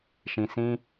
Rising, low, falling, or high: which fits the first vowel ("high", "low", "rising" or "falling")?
low